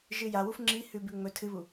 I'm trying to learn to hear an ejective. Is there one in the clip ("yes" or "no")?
no